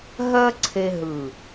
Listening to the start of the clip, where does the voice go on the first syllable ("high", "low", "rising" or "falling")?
high